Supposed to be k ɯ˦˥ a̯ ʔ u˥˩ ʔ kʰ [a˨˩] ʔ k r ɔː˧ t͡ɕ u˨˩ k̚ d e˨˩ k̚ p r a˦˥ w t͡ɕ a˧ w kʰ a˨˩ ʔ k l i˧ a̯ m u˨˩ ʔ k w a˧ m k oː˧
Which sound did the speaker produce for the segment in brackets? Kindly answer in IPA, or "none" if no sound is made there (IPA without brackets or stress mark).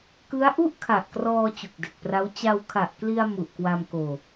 a˨˩